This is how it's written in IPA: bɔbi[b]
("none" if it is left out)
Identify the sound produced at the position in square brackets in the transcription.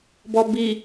none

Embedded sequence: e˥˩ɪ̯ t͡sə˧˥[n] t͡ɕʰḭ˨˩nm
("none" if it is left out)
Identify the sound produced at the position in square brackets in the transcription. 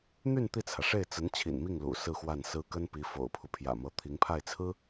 n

